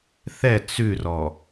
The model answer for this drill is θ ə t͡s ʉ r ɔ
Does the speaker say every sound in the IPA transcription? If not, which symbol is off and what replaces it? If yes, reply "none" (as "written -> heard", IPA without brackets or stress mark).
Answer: ə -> ɛ